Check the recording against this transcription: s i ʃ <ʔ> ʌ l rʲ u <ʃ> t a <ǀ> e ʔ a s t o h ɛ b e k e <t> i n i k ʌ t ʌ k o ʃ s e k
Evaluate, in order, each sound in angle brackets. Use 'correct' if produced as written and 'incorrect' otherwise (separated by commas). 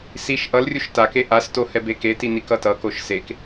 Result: correct, correct, incorrect, correct